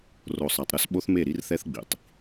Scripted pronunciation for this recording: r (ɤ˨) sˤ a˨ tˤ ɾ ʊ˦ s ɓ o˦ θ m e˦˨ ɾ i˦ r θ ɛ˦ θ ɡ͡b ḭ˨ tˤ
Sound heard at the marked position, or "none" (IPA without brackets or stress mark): o˨